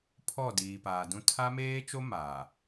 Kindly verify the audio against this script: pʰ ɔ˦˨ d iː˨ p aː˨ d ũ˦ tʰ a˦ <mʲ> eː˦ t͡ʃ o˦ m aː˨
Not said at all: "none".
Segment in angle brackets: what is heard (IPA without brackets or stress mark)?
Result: m